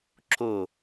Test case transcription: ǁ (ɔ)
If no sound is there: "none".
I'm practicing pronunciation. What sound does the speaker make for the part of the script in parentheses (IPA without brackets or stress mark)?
o